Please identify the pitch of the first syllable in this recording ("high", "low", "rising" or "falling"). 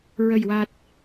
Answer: low